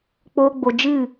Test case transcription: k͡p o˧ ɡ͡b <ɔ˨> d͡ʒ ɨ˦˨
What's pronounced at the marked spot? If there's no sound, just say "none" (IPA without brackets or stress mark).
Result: o˨